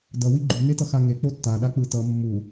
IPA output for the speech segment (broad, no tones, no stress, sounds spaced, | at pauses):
d ʌ w i ɡ͡ǃ u n e t ʌ x a ŋ e k͡p o tː a ɗ a k͡p ɯ t ʌ mː u